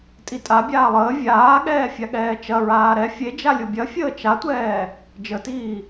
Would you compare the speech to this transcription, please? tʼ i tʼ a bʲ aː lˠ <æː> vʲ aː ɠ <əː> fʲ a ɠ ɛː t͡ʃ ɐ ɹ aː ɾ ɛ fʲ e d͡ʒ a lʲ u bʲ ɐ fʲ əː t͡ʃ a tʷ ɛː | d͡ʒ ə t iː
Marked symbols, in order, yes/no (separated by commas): no, no